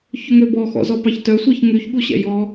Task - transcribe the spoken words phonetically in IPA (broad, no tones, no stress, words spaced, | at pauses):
çɵŋøbɔ xɔ̰zɔpɑçtœ sʷɛçŋyç ɠuɕɛ̰jɔ